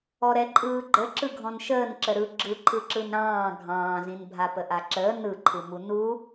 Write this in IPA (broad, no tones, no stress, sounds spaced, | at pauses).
ɔ ɾ ɛ ǃʼ ɯː ɡ͡ǃ ə ǁ ɯ ɡʱ ɔ̃ n ʃ əː n ǁ ə ɾ ɯ ɡ͡ǁ ɯ ǃʰ ɯ ǁ ɯ n ɾ ɑ̃ː ɡʱ ɑ̃ː z ĩ n bʱ a p ə ʔ a ǁ əː n ɯ ǃʰ ɯ m u n u